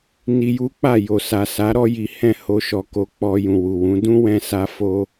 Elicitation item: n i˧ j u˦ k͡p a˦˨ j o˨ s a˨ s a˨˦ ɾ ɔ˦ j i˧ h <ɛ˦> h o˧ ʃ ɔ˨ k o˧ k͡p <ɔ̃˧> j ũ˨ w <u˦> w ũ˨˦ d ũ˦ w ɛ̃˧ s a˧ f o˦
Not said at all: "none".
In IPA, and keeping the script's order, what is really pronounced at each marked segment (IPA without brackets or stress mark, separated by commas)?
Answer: ɛ̃˦, ɔ˧, u˨